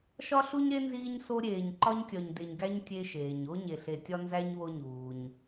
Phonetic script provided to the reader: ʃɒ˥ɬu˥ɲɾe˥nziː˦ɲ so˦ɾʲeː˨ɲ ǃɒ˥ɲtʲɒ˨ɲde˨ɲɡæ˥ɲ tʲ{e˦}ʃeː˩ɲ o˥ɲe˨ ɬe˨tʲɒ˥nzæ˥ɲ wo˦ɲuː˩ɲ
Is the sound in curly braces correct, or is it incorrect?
correct